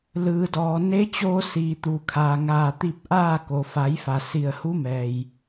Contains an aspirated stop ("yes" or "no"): yes